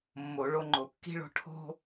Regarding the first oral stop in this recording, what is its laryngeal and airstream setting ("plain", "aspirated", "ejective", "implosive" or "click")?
click